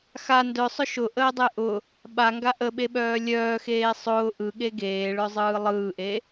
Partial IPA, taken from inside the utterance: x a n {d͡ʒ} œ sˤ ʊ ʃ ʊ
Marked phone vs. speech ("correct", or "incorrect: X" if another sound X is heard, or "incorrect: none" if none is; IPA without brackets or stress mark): incorrect: d